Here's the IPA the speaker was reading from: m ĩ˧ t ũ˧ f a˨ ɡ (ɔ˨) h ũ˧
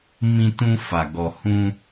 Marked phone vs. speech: correct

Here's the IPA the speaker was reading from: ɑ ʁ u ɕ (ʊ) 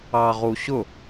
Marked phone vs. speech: correct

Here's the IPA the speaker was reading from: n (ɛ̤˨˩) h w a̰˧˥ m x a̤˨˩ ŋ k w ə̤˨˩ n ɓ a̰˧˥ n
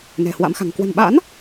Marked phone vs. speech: correct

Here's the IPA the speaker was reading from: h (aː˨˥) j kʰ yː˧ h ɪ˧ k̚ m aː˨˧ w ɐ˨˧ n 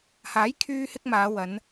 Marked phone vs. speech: correct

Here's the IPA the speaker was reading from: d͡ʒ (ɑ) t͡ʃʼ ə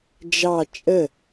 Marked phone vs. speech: correct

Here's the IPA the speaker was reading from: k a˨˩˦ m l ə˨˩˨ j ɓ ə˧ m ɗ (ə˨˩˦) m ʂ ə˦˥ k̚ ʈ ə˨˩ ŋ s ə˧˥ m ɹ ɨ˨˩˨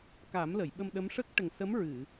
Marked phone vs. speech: incorrect: ə˧˥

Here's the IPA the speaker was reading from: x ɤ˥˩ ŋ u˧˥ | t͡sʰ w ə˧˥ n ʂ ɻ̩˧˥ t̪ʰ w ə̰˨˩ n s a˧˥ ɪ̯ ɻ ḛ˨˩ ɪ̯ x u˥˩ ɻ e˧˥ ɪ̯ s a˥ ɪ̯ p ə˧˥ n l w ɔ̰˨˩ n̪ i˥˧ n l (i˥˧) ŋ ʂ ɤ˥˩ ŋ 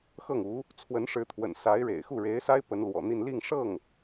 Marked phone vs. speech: correct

